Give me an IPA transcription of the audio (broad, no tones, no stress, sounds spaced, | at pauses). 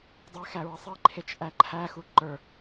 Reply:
dˤ e x æ ɹ ɘ sˤ i ǃʰ e t͡ʃ ʔ æ ǃʰ æ x u ǃ ə˞